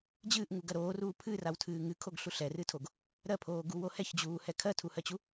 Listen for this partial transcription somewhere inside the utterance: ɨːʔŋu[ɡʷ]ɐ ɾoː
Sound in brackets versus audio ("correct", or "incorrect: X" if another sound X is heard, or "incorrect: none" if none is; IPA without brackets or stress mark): incorrect: ɡ